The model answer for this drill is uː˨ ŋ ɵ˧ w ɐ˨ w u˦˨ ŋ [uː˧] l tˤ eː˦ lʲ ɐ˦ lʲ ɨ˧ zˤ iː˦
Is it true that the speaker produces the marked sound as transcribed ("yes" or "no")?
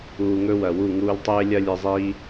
yes